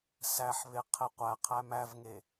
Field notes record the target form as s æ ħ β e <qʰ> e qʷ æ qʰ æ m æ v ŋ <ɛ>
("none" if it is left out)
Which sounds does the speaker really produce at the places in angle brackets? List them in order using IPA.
qʰ, e

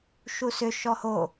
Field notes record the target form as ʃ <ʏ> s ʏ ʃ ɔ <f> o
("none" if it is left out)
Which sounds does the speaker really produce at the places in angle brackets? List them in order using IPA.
u, h

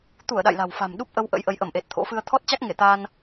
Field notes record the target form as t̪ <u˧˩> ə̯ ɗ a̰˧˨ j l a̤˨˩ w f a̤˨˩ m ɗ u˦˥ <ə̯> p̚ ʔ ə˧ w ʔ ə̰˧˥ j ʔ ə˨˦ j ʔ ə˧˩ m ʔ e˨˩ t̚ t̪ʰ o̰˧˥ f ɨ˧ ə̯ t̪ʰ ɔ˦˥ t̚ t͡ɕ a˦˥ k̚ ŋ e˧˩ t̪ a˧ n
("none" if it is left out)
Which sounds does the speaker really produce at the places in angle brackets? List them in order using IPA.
u˧˩, none

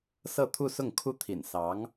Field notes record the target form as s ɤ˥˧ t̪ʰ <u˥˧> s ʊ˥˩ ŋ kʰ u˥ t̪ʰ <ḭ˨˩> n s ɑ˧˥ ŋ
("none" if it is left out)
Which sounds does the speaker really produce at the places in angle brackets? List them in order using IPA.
u˥˧, ḭ˨˩

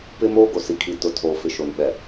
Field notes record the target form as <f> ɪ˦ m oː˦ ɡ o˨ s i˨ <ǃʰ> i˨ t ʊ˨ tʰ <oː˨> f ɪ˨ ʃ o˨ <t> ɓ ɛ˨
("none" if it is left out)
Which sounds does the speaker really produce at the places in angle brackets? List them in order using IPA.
p, kʰ, oː˨, n

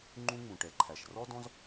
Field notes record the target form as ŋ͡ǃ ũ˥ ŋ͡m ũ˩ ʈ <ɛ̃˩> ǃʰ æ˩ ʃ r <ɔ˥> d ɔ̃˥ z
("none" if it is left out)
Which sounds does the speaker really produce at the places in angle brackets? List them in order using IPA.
ɛ˩, ɔ˥

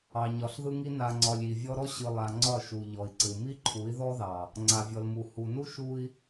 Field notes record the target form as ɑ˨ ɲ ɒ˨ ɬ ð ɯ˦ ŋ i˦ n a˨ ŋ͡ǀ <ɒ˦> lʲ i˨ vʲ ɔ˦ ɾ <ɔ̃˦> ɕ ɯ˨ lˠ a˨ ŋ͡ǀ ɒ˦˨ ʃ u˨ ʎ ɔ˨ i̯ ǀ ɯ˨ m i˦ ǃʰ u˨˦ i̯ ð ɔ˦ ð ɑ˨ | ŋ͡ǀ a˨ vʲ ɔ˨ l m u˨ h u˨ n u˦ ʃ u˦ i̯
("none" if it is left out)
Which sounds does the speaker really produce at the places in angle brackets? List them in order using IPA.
ɒ˨, ɔ˦

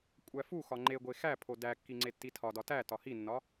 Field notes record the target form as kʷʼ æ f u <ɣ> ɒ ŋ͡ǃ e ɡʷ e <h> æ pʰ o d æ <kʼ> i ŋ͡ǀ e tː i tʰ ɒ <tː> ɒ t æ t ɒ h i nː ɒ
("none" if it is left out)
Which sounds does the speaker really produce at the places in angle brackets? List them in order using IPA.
x, x, kː, d

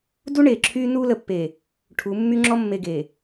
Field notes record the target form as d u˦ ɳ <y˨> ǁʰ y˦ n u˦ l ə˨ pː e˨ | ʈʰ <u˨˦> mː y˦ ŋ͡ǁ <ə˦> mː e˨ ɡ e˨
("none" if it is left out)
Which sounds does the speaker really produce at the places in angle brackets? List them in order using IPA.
e˨, u˨˦, ɔ˦

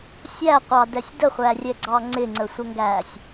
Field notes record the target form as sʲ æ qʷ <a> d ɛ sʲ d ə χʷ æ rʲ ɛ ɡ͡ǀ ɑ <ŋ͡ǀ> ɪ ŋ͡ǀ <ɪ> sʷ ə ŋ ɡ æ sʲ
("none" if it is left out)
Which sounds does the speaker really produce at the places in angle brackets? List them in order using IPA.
ɑ, ŋ͡ǀ, ə

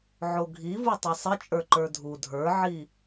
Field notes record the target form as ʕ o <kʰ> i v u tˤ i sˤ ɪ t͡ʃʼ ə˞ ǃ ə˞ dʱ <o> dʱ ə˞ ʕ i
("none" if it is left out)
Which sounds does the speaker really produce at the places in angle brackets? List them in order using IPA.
ɡʱ, u

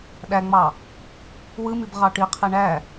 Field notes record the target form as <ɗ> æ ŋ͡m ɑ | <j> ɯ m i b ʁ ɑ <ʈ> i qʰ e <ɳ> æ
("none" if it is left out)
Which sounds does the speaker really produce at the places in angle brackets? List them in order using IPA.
ɗ, w, ʈ, ɳ

